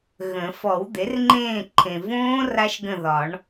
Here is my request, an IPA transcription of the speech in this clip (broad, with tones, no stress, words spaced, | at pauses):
ɣə̃˨˩˦ fɔ˨˩˦wd̪e˩˥rŋ͡ǃẽː˦˨ǃʰẽ˨ võː˦˥ ra˦˥ʃɡə̃˦˨ ðɒ˨˩˦ɳ